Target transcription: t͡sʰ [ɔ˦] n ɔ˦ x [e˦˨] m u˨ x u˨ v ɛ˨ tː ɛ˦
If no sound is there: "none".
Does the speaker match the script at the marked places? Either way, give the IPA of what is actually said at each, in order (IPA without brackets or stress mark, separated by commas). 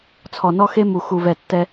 ɔ˨, e˦